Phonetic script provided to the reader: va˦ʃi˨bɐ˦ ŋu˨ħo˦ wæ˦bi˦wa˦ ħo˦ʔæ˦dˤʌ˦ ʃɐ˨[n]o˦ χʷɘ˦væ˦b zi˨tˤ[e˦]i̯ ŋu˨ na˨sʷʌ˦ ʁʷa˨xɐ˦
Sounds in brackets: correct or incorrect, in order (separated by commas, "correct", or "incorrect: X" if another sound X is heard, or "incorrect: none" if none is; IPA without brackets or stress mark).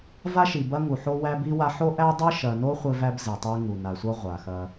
correct, incorrect: ɘ˦